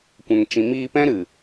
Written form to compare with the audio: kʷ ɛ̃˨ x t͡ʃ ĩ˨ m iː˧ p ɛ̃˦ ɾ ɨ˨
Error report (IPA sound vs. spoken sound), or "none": x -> ŋ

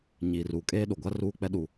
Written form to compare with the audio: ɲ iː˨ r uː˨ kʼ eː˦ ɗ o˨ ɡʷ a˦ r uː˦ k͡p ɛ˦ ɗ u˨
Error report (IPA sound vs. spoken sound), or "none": none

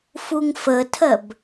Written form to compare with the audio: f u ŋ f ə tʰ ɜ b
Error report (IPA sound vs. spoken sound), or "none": none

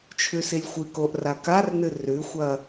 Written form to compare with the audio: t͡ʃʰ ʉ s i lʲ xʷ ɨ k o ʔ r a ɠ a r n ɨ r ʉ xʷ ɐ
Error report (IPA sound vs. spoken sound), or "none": ɠ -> k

